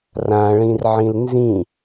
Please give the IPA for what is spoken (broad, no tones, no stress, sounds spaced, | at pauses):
r ã ɭ ĩ r ʕ ĩ l n z ĩ